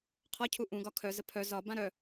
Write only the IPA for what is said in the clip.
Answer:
qʰ ɒ cʰ u ʔ ũ ɡ ɒ kʰ œ z ə pʰ œ z ɒ b ã ɾ œ

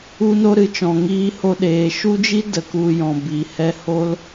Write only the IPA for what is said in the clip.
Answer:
u˧ n o˧ ɾ ɨ˨ t͡ʃ ɔ̃˨ ŋ iː˧ h o˧ ɗ eː˨ ʃ u˦ d͡ʒ i˦ d ə˨ k u˨ j ɔ̃˨ b i˨ h ɛ˧ h o˦ l

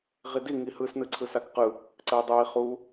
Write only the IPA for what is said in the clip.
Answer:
ʁ i d i ŋ i h ɯ s n ɯ ǀʰ ɯ s a k q ɯ | ǀ ə i̯ dˤ ɯ i̯ χ u

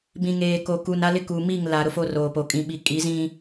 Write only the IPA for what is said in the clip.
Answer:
b ĩ˨ ŋ eː˨ k o˨ k u˨ n a˦ l ɪ˦ k uː˨ m i˦˨ ŋ l a˨ ɾ ʊ˦ f o˦ r oː˨ p o˨ kʼ ĩ˨ ɓ i˨ kʼ i˨˦ z ĩ˦

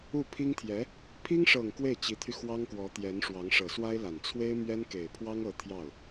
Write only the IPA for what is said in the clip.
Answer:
u˥˩ pʰ i˥ ŋ t̪ʰ j ɛ˧˥ | pʰ i˥ ŋ ʂ ɤ˨˩ ŋ k w e˥˩ ɪ̯ t͡ɕ i˧˥ t̪ʰ y˧ x w ɑ˥ ŋ k w ɔ˧˥ t̪ j ɛ˧˥ n ʂ w ɑ˧˥ ŋ ʂ ɤ˨˩ s w a˥ ɪ̯ l a˨˩ n t͡sʰ w e˥ ɪ̯ m ɥ ɛ˥ n k e˨˩ ɪ̯ pʰ w ɑ˥ ŋ ɤ˧˥ t̪ʰ j ɑ˥˩ ʊ̯

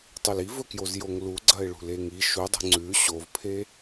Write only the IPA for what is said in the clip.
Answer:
tˤ i l i v ɵ k j o z j o ŋ l u ɡ͡ǀ ɐ ɪ̯ ɭ ṳ l e ŋ i ʃ u dˤ ṳ ŋ͡ǀ ʉ ɕ o v pʰ e

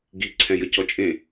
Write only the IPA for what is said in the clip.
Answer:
ɡ i ǀʰ ɛ̃ j ə c ɔ t͡ʃʼ ẽ

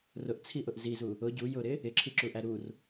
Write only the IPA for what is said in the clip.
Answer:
r ʊ ʔ t͡sʰ i ʔ ʊ ʔ z i z u | ʊ ɟ u j ʊ ɾ ɪ | ɪ ǁʰ i ǁ u ʔ æ ɾ u r

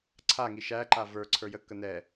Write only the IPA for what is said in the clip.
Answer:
ǀʰ a ŋ i ʃ æ ǃ a v ə˞ ǀʰ ə˞ j ə kː ə n ɛ

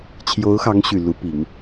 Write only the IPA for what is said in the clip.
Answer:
t͡ɕʰ j o˧˥ ʊ̯ x ɑ˧˥ ŋ ɕ y˨˩ l u˧˥ p i˨˩˦ ŋ

